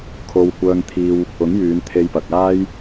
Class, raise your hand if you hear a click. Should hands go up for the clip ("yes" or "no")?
no